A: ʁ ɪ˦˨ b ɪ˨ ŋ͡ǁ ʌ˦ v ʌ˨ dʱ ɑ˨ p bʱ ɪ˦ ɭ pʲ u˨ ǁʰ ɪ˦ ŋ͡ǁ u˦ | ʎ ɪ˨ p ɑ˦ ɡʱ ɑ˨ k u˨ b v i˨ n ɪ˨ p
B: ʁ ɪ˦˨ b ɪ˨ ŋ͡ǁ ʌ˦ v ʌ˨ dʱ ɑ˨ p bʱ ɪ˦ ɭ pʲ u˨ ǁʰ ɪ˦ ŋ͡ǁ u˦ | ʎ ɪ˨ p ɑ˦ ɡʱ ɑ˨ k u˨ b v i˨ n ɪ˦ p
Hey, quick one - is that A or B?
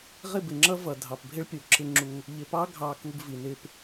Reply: B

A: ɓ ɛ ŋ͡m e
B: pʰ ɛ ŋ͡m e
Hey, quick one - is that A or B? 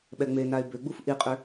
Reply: A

